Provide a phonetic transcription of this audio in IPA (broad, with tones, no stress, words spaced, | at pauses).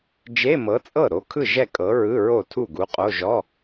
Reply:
d͡ʒe˧˥˧mɤ˨˥t͡sʼɤ˥˩ ɾo˨˥kʰɯ˥˩ʒɛ˥˩ kʼɤ˨˥ɹɯ˧˥˧ ɹo˥˩tʰu˥˩ɡu˨˥qʼo˧˥˧ ʒɔ˧˥˧